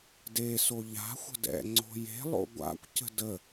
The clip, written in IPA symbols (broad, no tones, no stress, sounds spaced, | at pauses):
d e s o ʎ a̤ xʷ ə̤ d ɛ̰ ŋ͡ǀ o̤ j e̤ lˠ o̰ ɡʷ a̰ kʷ c ə̤ d ə